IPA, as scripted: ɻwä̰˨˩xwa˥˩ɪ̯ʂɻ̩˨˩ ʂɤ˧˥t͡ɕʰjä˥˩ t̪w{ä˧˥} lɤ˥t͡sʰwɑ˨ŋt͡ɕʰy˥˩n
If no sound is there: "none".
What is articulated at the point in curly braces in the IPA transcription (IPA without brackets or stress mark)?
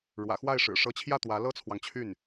ä˧˥